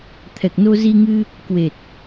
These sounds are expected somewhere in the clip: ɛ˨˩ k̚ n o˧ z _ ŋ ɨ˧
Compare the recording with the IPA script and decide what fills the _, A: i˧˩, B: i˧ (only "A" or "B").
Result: B